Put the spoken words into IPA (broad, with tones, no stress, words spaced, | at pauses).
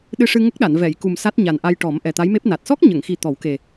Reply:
ɗɨ˧ʂɨ˧ ŋə˦˥k̚ɗa˨˩˨n vɛ˨˩˨jku˨˩m sa˦˥t̚ɲa˨˩nʔa˧jʈɔ˨˩˦m ʔɛ˨˩t̪a˧˥jme˦˥p̚ na˨˩t̚ sɔ˦˥k̚ɲə˨˩˨ŋxi˨˩ t̪ɔ˨˩˦wke˨˩